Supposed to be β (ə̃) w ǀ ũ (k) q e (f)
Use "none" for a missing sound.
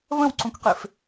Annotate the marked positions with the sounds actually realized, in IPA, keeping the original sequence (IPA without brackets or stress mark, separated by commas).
ə̃, k, f